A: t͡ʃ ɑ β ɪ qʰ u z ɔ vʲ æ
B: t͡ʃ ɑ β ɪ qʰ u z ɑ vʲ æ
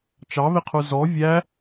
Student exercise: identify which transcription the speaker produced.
A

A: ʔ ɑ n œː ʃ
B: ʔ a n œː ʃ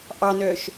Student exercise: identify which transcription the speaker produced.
A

